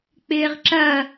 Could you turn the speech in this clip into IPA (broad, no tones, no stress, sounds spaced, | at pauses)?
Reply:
k͡p ɪː ʁ ǁ ɐ